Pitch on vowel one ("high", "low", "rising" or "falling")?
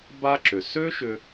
high